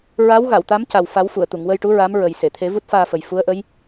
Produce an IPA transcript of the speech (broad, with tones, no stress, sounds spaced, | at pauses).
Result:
ɹ a˧˥ w ɣ a˨˩˨ w t̪ a˧˥ m c a˨˩ w f a˨˩˦ w f u˨˩˨ ə̯ t̪ u˨˩˨ ŋ w ə˧ j ʈ u˧˥ ɹ a˧˥ m ɹ ə˨˩ j s e˨˩˨ t̪ʰ e˨˩˦ v u˦˥ t̚ f aː˧ f ə˨˩ j f u˧˥ ə̯ ʔ ə˧˥ j